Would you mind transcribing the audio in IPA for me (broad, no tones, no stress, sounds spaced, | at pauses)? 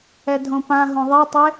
ɛ dʱ õ p ã ɦ õ ðˤ ɛ tˤ e